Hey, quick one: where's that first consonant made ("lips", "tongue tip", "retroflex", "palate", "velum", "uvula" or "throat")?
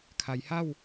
velum